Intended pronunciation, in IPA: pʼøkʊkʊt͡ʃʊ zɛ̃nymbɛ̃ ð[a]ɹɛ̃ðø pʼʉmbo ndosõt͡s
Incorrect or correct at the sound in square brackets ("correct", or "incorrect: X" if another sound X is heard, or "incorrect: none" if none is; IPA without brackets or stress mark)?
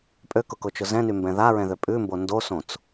correct